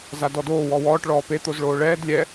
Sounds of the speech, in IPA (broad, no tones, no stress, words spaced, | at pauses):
zadɔdoː wɔwɔːʈ ɭɔːpe t̪ozɭoːɭɛːd lʲɛ